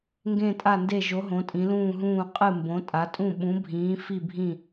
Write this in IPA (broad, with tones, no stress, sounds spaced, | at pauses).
ŋ ɡ ẽ˧˩ tʼ a˧˩ n d e˧˩ ʒ o˩˧ ɦ õ˩˧ tʼ ĩ˩˧ l ũː˧˩ ɦ ũː˧˩ qʼ ɨ˧˩ m b õ˩˧ tʼ a˩˧ tʼ ũ˧˩ ɓ ũ˩˧ bʱ ĩː˩˧ f i˧˩ bʱ ĩ˧˩